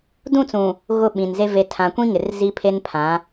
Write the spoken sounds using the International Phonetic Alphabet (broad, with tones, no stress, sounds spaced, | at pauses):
d ũ˦˨ t͡s ũ˨ | ɣ ʊ˦˨ ɓ ĩ˨ n z e˦ v e˨ tʰ ã˨ kʷ ĩ˦ ŋ ɪ˨ r z i˦ pʰ e˦ n pʰ ã˨˦